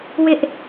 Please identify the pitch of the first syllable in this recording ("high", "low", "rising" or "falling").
high